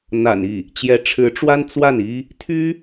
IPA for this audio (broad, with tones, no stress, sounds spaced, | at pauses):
n̪ a̰˨˩ n i˥˩ | t͡ɕ j ɛ˧˥ ʈ͡ʂʰ ɻ̩˧˥ ʈ͡ʂ w a˥ n t͡s w a˥˩ n i˥ | t̪ʰ y˥